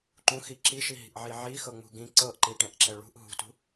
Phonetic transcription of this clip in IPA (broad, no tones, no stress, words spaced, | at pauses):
ǃũxi ǁiʃiɦi̤ʔʕi ʕixɤŋ͡mṳ ɡĩ ǀɤʔǃiʈɛ̃ʔǁɛ ɭṳʔ ɦṳtṳ